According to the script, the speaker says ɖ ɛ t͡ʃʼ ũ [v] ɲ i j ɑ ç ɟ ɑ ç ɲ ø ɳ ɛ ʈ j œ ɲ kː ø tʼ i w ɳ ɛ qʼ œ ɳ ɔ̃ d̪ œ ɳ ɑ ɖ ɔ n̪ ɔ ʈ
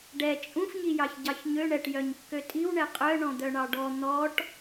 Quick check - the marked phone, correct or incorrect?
incorrect